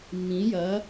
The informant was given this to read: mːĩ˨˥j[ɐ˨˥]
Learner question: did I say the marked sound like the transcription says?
yes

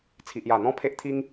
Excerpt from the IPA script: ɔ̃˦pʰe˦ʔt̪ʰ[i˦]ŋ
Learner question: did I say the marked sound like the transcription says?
yes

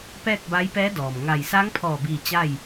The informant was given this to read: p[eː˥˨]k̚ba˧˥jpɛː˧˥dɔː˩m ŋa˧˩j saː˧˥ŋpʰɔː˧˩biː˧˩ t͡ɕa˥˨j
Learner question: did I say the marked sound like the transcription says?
no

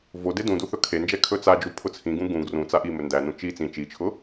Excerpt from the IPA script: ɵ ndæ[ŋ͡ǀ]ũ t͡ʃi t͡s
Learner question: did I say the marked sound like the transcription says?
no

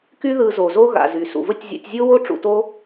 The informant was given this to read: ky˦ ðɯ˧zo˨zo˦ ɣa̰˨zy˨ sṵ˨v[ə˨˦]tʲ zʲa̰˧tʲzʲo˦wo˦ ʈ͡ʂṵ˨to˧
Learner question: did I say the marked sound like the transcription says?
no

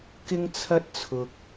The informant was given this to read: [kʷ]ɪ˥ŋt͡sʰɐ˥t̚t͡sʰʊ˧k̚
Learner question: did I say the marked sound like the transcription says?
no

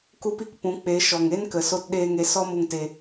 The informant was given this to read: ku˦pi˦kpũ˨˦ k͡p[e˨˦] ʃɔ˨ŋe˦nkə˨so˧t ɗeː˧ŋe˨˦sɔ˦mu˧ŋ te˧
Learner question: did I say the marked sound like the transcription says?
yes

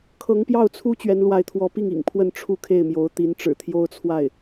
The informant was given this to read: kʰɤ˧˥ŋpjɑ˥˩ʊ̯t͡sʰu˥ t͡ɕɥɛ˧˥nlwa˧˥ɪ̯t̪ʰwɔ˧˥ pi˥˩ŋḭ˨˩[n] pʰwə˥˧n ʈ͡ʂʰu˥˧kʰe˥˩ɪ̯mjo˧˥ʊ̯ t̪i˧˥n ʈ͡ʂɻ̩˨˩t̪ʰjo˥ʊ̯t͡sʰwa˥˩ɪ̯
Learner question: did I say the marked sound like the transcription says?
no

